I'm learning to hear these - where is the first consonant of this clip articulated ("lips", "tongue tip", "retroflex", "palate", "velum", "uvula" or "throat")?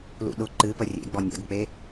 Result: tongue tip